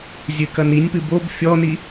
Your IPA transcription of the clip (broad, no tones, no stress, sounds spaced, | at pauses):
zʲ ɨ k ɐ n i nʲ p ɨ b o b fʲ ɔ n i